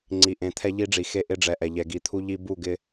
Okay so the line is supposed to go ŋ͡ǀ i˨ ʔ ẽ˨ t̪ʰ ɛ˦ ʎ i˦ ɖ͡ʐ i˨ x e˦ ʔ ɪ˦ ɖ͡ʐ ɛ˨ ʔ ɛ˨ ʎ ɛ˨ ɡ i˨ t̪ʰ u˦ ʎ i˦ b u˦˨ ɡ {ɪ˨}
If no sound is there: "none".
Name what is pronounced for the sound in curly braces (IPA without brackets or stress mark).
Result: ɪ˦